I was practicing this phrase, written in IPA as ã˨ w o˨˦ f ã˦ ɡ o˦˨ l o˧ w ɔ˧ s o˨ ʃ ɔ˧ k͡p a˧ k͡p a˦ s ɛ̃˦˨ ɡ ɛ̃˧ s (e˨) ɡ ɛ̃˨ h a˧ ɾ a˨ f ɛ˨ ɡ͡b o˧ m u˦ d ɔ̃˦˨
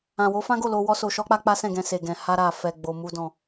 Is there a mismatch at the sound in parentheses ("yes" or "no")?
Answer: no